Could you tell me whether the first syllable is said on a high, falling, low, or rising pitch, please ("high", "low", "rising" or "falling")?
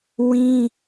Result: high